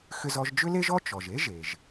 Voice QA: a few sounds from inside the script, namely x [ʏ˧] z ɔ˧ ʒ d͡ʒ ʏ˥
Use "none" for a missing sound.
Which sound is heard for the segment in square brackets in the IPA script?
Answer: ʏ˧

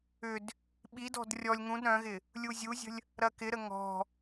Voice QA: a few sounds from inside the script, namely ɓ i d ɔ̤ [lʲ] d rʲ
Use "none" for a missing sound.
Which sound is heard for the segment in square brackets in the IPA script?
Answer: none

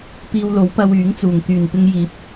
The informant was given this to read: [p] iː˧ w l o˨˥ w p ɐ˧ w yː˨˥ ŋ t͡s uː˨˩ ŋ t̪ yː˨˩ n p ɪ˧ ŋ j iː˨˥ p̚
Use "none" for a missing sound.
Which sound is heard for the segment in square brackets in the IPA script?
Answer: p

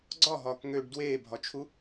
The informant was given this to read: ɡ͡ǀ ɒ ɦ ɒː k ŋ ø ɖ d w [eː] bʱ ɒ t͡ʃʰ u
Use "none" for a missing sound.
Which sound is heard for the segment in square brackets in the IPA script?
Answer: eː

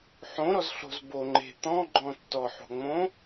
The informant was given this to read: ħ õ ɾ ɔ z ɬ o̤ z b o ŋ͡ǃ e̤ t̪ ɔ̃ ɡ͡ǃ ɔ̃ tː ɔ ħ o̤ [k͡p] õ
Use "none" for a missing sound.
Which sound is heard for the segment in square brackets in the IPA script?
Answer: ŋ͡m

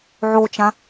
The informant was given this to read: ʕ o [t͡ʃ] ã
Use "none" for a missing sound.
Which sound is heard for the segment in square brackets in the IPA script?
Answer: t͡ʃ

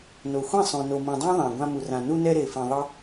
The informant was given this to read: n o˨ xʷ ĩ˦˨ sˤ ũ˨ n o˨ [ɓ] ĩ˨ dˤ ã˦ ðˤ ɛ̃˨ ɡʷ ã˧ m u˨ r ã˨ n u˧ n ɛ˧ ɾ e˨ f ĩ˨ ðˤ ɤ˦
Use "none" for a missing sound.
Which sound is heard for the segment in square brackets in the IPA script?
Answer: m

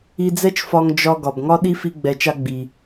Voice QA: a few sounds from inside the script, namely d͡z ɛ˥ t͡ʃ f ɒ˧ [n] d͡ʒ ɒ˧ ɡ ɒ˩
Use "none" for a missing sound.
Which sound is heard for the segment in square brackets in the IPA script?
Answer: ŋ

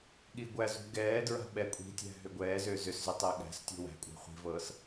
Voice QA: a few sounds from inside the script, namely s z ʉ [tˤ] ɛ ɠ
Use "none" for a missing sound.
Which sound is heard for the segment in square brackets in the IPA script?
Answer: tˤ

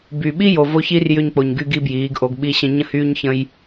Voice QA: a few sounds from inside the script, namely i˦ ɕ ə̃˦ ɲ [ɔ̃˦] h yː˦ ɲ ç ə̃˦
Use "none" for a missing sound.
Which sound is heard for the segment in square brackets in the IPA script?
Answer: ə̃˦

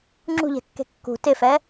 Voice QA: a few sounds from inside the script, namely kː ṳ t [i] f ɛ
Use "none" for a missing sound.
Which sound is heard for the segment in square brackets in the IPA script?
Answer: ɪ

